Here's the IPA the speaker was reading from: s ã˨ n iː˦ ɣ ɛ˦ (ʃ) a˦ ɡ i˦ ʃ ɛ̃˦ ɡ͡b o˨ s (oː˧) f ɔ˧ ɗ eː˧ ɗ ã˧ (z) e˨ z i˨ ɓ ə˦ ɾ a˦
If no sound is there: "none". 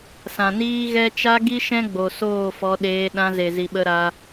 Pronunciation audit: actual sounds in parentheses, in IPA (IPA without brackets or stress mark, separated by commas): t͡ʃ, oː˦˨, z